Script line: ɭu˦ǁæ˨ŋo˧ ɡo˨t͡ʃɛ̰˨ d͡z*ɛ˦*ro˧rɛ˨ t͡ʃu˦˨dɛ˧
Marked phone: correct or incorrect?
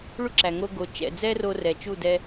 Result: correct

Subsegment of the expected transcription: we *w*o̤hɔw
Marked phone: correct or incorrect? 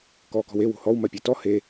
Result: correct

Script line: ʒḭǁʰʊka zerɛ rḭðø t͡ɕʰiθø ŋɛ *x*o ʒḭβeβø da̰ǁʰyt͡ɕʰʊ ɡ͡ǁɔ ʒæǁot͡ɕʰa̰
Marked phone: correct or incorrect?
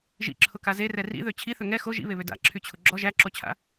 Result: correct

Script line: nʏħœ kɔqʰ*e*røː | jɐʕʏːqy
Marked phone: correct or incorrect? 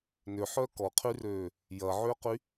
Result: incorrect: y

